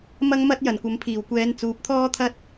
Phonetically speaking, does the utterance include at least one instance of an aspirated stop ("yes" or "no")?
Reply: yes